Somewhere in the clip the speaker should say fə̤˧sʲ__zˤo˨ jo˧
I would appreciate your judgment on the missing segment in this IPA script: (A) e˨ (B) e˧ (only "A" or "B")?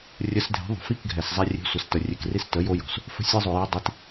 B